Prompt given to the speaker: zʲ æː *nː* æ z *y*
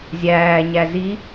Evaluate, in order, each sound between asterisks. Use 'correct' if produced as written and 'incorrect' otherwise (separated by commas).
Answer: incorrect, incorrect